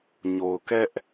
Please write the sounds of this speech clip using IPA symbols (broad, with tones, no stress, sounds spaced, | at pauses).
ɲ o˨ ʊ̯ k ɛ˦ ʔ